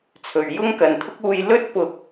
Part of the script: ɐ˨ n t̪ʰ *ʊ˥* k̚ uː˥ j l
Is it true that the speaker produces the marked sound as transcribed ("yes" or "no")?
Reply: yes